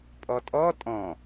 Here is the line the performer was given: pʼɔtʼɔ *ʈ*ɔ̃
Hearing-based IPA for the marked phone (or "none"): tʼ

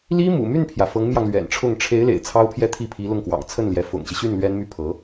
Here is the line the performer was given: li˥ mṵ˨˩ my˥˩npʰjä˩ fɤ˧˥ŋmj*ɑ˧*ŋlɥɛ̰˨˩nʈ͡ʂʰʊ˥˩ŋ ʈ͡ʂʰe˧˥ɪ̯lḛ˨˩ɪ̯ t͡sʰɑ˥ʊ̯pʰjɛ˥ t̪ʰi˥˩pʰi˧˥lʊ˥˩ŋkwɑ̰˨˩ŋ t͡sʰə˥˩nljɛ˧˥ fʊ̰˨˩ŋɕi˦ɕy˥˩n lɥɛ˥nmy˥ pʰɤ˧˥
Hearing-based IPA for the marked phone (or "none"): ɑ˧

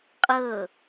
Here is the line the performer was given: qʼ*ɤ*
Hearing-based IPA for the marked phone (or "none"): ɤ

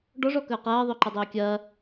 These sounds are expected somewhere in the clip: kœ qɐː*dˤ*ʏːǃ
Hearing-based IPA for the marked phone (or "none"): ðˤ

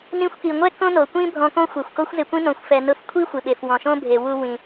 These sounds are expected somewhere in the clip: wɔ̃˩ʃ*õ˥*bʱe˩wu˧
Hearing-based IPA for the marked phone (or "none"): õ˥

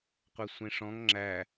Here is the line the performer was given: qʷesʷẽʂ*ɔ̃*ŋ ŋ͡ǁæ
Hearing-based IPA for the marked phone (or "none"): ɔ̃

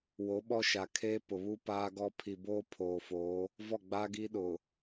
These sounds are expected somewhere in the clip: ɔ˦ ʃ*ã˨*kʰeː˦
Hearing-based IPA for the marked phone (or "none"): a˨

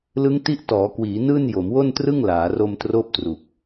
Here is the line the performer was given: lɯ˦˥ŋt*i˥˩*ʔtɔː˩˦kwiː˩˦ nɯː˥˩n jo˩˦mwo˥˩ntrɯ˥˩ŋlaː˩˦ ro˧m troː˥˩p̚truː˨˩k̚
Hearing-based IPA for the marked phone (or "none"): i˦˥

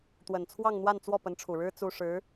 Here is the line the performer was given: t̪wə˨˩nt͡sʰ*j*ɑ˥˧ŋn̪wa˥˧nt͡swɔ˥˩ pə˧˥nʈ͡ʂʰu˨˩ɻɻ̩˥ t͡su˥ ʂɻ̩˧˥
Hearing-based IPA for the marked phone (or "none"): w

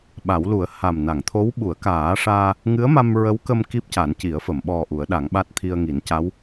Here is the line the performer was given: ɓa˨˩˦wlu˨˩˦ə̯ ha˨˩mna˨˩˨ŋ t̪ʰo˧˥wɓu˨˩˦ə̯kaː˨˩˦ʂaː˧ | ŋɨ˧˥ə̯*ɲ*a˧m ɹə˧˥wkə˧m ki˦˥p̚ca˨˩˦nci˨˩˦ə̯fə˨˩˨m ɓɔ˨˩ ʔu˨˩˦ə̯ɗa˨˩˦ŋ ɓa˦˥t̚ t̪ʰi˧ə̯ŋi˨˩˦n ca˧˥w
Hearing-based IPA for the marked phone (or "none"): m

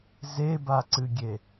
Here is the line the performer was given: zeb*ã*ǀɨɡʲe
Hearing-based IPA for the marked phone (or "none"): a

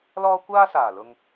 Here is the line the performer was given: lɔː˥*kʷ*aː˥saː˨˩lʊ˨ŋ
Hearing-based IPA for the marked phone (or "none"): kʷ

